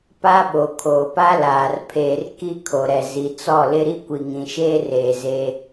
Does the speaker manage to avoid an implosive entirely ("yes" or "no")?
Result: no